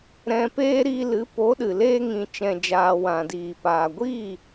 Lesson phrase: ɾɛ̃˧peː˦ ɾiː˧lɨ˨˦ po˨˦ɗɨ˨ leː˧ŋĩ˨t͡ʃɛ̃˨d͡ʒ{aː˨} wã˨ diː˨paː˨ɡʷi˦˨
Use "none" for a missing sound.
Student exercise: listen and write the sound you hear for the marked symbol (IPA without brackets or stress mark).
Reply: aː˨